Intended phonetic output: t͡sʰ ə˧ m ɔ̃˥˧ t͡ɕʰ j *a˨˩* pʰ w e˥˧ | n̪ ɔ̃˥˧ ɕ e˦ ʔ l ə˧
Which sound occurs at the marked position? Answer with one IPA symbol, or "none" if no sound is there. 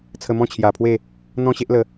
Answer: a˨˩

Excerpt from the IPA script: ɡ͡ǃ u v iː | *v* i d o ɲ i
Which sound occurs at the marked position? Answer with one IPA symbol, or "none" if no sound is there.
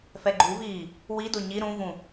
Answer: w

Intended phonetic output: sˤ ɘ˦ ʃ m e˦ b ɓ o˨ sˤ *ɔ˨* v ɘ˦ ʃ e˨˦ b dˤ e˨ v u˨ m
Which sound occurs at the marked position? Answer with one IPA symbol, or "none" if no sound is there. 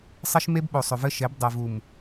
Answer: ɵ˨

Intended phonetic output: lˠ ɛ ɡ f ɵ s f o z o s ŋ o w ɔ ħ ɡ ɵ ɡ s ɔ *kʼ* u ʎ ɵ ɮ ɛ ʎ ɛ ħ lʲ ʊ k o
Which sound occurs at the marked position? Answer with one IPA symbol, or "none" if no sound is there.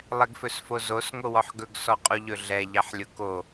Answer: qʼ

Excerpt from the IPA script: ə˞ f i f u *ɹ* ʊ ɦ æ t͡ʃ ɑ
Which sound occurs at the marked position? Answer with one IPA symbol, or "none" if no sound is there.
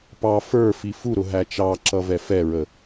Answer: ɾ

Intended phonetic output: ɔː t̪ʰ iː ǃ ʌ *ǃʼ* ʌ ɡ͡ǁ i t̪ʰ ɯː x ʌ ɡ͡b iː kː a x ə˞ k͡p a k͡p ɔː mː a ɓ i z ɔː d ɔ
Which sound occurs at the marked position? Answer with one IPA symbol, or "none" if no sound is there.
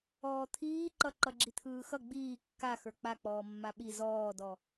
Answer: ǃ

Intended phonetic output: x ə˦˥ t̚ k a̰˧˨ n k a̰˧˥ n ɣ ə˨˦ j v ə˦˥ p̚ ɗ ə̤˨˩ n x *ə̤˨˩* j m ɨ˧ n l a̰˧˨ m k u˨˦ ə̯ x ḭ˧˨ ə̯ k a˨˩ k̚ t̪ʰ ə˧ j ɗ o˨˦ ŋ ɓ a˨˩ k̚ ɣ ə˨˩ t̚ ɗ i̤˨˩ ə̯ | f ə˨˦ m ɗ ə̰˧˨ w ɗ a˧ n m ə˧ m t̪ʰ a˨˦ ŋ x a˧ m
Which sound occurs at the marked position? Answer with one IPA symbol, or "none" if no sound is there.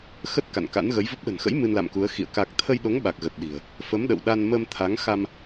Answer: ə̰˧˥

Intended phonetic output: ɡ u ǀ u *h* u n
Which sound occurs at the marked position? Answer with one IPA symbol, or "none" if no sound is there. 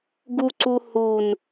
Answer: h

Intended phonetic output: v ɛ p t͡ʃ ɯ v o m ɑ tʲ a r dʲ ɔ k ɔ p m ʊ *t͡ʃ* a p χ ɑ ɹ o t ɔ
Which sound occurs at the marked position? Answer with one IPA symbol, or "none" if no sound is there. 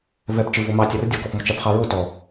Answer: t͡ʃ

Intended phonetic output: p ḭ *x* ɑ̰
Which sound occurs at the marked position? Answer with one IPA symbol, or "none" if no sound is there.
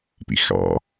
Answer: x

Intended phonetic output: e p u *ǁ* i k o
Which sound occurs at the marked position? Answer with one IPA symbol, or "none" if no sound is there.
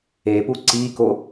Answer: ǀ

